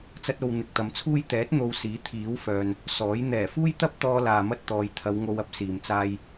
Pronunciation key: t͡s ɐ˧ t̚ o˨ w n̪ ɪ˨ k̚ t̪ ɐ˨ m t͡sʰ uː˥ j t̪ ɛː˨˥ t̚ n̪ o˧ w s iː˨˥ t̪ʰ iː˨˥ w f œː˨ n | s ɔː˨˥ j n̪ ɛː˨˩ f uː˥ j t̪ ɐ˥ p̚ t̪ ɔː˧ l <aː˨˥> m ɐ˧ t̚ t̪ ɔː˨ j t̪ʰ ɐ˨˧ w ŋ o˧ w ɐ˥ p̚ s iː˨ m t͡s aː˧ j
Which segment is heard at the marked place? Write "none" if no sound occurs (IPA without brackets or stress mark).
aː˨